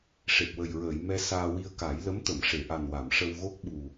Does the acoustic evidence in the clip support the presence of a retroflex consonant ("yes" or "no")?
yes